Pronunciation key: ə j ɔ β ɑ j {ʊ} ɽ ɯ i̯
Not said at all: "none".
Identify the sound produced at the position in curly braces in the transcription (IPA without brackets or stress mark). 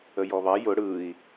ʊ